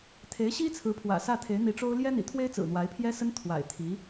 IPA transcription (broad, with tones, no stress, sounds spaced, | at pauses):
t̪ʰ e˧˥ ɪ̯ ɕ i˥ t͡sʰ ɹ̩˧˥ pʰ w ä̰˨˩ s ä˥˩ t̪ʰ e˧˥ ɪ̯ n̪ i˧˥ ʈ͡ʂ o˥ ʊ̯ l j ɛ˥ n̪ ḭ˨˩ t̪ʰ w e˥ ɪ̯ t͡s ɹ̩˨˩ n̪ w a˧˥ ɪ̯ pʰ j ɛ˥ s ə˥ n t̪ʰ w a̰˨˩ ɪ̯ t̪ʰ i˧˥